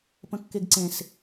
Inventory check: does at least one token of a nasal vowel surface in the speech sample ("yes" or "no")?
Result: yes